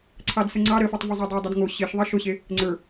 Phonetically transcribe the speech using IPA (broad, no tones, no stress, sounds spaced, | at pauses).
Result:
ǀʰ ɑ d s ə ŋ͡ǀ ɑ ɾ ə f ɑ tˤ v ʊ zˤ o dˤ ə˞ dˤ ə d ŋ o ɕ e ʃ ðˤ ɑ ʃ ʊ ɕ e | ŋ͡ǀ ə˞